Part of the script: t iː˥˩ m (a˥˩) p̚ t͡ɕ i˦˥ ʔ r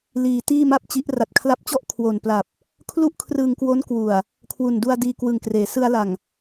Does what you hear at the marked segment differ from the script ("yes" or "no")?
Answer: no